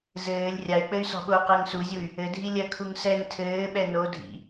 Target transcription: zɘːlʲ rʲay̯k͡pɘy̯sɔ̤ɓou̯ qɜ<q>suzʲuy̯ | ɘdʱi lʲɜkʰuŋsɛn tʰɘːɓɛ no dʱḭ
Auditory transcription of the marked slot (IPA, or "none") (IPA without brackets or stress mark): ŋ